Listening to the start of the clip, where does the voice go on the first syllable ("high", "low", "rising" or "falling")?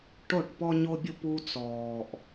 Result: falling